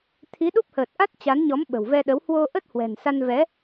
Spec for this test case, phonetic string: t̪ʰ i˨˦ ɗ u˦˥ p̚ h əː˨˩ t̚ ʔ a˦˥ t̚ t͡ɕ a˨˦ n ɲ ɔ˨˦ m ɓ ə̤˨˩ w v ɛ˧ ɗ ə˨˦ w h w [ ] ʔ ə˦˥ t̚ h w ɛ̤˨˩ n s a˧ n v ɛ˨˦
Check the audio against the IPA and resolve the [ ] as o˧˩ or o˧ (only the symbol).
o˧